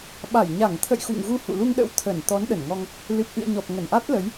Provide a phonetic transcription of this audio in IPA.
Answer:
ɓ a˧˩ j ɲ a˧˩ ŋ t̪ʰ ə̰˧˨ j x ṵ˧˨ ŋ ɣ u˧ h ṵ˧˨ l u˧ ŋ ɗ ə̰˧˥ w t̪ʰ ə˧˩ n t̪ ɔ˨˦ n ɗ ə˧˩ n ŋ ɔ˧ ŋ | l ɨ˨˩ p̚ ʔ ɨ̰˧˨ ə̯ ɲ ɔ˨˩ p̚ ŋ ə˧˩ n ʔ a˦˥ t̚ l ə˨˦ j

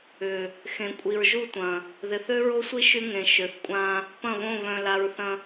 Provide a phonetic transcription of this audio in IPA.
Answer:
ʏ˨ | x ẽ˨ kʷʼ i˨ ɹ ʒ u˦˨ tʷ ɐ̃˨ | ð ɪ˨ θ ø˦ ɹ o˦ sʷ i˦ ʃ y˦ ŋ ẽ˨ ʃ ø˨ θ kʷʼ ã˦ | p ɐ̃˦˨ β õ˦˨ β œ̃˨ l a˨ ɹ θ ɐ̃˨

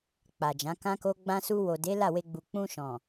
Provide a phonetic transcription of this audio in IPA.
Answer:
k͡p a˨ d͡ʒ ã˨˦ k ã˦ k o˦ ɡ͡b ã˧ s u˧ w o˨ d e˨˦ l a˦˨ w e˧ ɡ͡b u˨ k͡p ũ˧ ʃ ɔ̃˨

